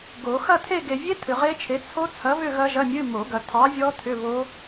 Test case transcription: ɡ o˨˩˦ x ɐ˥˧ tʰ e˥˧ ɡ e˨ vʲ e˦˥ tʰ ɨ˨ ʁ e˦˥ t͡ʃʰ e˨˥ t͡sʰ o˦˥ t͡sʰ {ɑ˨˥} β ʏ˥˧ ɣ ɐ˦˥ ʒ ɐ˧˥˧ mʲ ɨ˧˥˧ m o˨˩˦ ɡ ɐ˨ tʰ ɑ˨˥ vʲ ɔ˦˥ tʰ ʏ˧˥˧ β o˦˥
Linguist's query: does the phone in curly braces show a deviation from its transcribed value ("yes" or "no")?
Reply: yes